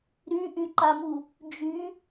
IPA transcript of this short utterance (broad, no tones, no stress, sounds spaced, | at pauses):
ɾ y ʔ y ǃ a m u | d͡ʒ y